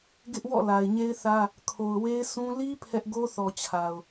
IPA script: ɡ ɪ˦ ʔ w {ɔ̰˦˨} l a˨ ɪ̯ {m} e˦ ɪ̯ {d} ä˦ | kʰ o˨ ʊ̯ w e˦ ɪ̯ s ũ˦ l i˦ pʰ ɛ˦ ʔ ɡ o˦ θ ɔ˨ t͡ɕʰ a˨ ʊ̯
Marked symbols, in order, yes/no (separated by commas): yes, no, no